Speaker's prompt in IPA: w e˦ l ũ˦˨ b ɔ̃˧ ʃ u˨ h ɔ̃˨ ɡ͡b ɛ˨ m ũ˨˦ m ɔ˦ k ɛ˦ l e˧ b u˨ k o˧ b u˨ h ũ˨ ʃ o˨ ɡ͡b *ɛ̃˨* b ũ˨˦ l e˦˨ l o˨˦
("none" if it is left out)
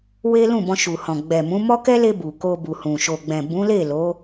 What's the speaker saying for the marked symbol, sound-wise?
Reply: ɛ̃˨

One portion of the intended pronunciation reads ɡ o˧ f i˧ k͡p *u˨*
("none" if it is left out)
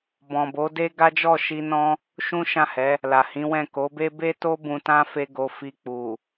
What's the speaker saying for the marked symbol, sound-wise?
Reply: u˨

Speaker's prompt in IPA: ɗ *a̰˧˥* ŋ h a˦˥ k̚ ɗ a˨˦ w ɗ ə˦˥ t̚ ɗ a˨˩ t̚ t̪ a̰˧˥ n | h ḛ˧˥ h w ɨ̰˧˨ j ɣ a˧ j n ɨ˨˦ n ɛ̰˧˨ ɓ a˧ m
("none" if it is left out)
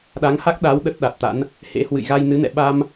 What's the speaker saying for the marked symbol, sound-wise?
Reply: a˨˦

